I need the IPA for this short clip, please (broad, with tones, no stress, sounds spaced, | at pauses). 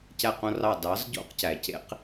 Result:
c æ˦˨ q õ˦ r ɑ˦˨ d ɑ˨˦ z ɟ o̰˦ q c æ˨ c ḛ˦ q